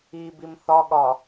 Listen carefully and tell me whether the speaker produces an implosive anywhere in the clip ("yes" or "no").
yes